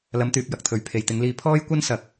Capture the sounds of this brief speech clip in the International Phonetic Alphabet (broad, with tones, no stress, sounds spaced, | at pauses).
l ɐ˨˧ m t̪ yː˨ p̚ j ɐ˨ k̚ t̪ʰ ɵ˨ ɥ pʰ e˨ j t̪ ɪ˨˧ ŋ l iː˧ pʰ ɔː˥ j kʷ ɐ˥ n s ɐ˨ k̚